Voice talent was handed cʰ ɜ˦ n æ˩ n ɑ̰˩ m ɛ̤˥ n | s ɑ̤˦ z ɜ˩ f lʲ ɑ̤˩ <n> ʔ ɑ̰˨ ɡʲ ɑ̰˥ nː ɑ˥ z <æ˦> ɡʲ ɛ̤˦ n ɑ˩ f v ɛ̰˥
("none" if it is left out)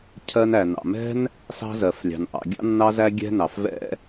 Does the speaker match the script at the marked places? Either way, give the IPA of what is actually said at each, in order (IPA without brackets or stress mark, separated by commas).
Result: n, æ˦